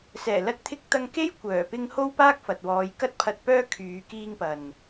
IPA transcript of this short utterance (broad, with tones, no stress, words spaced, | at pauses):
sɛː˨˩lɐ˧t̚t̪ʰɪ˧k̚ t̪ɐ˧ŋke˥j kʷœː˨˩pɪ˧ŋ ho˥wpaː˥k̚fɐ˨t̚wɔː˨˧j kɐ˧t̚pʰɐ˨t̚pœː˧ kʰyː˨˧kiː˧ŋpɐ˨n